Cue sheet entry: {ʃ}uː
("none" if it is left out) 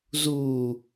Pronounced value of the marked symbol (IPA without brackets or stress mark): z